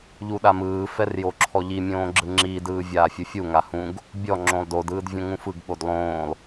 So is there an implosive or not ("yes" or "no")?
yes